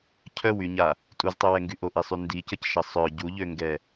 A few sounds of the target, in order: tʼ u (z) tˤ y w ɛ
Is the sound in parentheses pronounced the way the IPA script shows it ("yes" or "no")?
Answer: yes